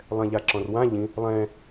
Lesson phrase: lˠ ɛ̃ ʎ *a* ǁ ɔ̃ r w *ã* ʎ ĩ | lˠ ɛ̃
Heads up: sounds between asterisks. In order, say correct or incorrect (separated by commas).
correct, correct